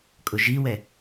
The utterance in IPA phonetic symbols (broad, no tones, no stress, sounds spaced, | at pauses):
kʼ ʊ ʒ i w ɛ